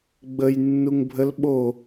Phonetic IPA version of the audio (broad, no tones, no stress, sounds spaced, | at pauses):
ɡ͡b ə j nː u ŋ bʱ ə l ɓ o